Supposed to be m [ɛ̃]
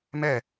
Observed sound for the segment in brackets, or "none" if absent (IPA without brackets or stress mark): ɛ